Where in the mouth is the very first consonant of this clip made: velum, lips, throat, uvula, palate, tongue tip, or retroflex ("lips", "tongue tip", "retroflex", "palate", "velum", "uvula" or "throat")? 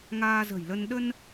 velum